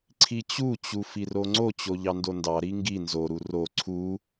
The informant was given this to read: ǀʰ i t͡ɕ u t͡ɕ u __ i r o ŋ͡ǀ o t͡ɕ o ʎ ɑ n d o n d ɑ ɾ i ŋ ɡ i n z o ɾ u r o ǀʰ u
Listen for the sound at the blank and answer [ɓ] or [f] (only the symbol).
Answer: f